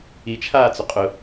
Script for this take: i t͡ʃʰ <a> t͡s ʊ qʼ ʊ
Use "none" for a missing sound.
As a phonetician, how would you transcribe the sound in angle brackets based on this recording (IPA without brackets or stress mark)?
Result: aː